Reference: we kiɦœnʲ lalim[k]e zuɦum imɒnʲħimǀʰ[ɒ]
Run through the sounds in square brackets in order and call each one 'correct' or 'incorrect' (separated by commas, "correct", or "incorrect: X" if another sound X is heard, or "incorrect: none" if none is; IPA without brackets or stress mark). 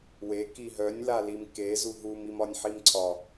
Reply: correct, correct